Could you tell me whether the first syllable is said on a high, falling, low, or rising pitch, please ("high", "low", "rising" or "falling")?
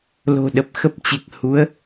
low